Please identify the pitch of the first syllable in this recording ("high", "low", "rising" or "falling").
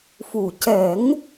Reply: low